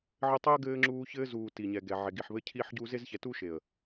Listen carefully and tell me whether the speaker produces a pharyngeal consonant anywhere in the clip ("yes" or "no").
yes